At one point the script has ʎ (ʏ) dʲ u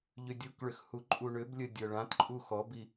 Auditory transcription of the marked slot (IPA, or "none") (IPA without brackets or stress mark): ʏ